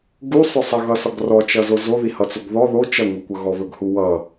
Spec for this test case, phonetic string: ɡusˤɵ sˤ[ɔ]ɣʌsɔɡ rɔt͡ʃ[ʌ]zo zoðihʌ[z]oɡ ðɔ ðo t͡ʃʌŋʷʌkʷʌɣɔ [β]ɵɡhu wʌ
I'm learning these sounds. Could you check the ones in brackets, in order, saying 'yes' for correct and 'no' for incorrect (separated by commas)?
no, yes, no, yes